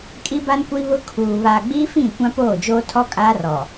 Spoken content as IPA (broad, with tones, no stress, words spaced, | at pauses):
kʼi˦ba˦nkʷi˦βʊ˦ kʰuː˨ βaː˨ɡ͡biː˦fĩ˦˨ kʷã˦poː˦˨d͡ʒoː˦ tʰɔ˦kʼaː˦rɔ˨